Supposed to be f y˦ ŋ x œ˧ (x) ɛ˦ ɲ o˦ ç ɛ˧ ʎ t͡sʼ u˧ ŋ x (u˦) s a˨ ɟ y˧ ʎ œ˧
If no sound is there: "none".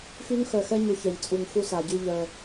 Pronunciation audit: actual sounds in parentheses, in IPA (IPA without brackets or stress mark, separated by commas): x, u˧